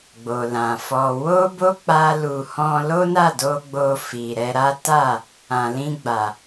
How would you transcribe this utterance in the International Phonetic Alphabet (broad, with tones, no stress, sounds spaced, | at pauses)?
ɡ͡b o˨ l ã˨ f ɔ˧ w o˦ b o˦ k͡p a˦ l u˧ h ɔ̃˧ l o˦ n a˦˨ d o˧ ɡ͡b o˧ f i˨ ɾ ɛ˧ ɾ a˦ t a˦˨ | ã˨ l ĩ˧ ɡ͡b a˨